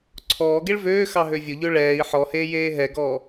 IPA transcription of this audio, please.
ǀʰ ɔː ɡ e ɭ v øː x ɑ ɦ ø vʲ ʊ ʎ ø ɭ ɛː i̯ ħ ɔ h eː j eː ɦ ɛ ɡ ɔː

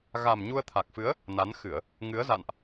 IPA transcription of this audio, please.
ɣ a˨˩ m ɲ u˧ ə̯ t̪ʰ a˨˩ k̚ f ɨ˨˦ ə̯ | n a˨˦ n x ɨ˧˩˨ ə̯ | ŋ ɨ˨˦ ə̯ z a̰˧˨ n ʔ

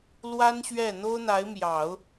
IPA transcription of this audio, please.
l w a˥ n ɕ ɥ ɛ˥˩ n̪ o˥ ʊ̯ n̪ a˧˥ ɪ̯ m j ɑ˨˩˦ ʊ̯

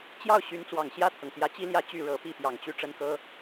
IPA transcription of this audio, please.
t͡ɕ j ɑ˥˩ ʊ̯ ɕ y˧˥ n t͡s w ɑ˨˩ ŋ ɕ j ä˥˩ t̪ʰ ɤ˩ ŋ t̪ j ä˧˥ t͡ɕ i˥ l j ä˥˧ t͡ɕ y˥˩ ɻ ɤ˨˩ p i˥˩ p j ɑ˨˩ ŋ t͡ɕ y˥˩ ʈ͡ʂ ə˥ n k ɤ˥

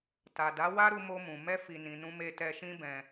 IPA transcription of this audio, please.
t a˨ d a˨˦ w a˦ ɾ u˧ m o˧ m ũ˨ m ɛ˧ f i˨ n ĩ˨ n ũ˧ m e˧ t ɛ˧ ʃ ĩ˦ b ɛ̃˧

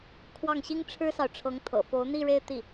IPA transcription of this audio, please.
kʰ w ɑ˥˩ ŋ ɕ i˥ ŋ ʈ͡ʂʰ ɻ̩˥ s ɑ˨ ʊ̯ ʈ͡ʂʰ ɤ˧˥ ŋ t̪ʰ ɤ̰˨˩ f o˧˥ ʊ̯ n̪ i˥˧ ɻ e˥˧ ɪ̯ t̪ i˥˩

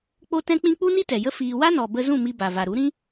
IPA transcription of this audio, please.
k͡p o˦ t ɛ̃˦ k͡p ĩ˦ k͡p u˦ n i˦ t ɛ˨ j ə˦ f iː˧ w a˦ n ɔ˨ b ə˧ z ũ˦˨ m i˧ b a˨ v a˨ ɾ u˨˦ ɾ ĩ˦

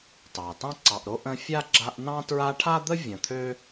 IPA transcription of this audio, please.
t ɑ˩ t ɑ̃˥ ǀ ɑ˨ ʔ ɾ o˥ ʔ ə̃˦ fʲ a˥ ɡ͡ǁ a˦ ʔ n ɑ̃˥ t ɹ a˦ ʈʰ a˥ d̪ ə˥ vʲ ə̃˨ t̪ʰ ø˥

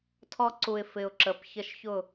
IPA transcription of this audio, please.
tʰ ɔ˧ ǀ u˨ ɪ̯ f ɪ˨ ʊ̯ ǁ ə˨ p ç ə˧ ʃ ç ʊ˦˨

